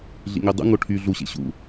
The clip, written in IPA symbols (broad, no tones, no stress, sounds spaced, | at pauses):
ɮ ḭ ŋ ø dˤ ṵ ŋ o ʈʰ y ɮ u ɕ ḛ ɕ ṵ